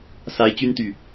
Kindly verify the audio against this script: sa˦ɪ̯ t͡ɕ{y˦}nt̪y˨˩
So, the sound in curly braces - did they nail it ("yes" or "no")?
yes